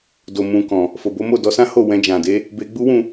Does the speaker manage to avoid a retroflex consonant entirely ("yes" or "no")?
yes